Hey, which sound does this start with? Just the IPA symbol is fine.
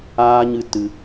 aː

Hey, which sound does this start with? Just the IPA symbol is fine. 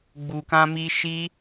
ɡ͡b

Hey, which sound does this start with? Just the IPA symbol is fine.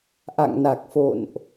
ʔ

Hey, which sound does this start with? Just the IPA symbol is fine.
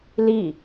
l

